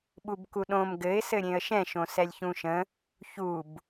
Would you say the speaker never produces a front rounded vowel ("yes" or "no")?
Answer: yes